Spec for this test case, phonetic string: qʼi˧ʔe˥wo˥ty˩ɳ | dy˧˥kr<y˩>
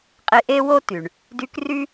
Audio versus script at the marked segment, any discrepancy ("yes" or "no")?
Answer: yes